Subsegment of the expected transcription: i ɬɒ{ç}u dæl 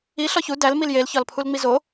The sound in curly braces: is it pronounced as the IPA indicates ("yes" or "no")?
yes